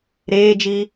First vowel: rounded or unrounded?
unrounded